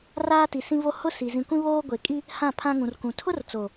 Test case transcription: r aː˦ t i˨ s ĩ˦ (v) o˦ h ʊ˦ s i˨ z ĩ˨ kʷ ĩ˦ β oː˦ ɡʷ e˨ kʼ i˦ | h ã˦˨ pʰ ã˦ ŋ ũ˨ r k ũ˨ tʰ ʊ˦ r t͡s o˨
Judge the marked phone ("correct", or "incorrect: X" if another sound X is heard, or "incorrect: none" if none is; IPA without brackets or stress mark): correct